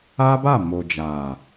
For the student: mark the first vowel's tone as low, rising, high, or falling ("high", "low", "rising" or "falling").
high